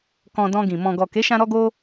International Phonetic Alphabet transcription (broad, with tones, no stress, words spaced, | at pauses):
kɔ̃˧dɔ̃˧ɡĩ˨ mɔ̃˨ɡɔ˨ke˨˦ʃã˧ ɾɔ˦ɡo˦